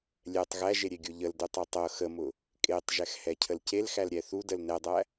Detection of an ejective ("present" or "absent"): present